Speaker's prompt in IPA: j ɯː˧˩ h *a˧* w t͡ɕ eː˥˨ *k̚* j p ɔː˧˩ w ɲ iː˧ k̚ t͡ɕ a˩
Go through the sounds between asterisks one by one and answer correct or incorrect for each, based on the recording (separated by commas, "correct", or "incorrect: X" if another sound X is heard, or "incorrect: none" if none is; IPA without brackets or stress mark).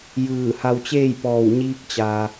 correct, incorrect: none